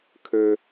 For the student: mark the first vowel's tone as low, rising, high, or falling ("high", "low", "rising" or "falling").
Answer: high